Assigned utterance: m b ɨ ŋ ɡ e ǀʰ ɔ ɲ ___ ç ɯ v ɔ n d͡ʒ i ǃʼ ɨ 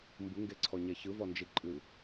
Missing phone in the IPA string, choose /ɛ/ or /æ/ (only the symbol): ɛ